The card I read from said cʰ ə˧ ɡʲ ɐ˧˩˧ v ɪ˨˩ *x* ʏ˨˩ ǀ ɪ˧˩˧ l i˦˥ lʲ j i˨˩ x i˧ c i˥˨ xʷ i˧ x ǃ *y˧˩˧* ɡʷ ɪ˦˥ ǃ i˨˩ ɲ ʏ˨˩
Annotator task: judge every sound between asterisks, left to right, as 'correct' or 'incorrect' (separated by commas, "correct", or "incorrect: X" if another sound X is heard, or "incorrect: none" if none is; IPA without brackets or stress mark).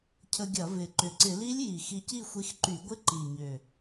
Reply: incorrect: ǃ, correct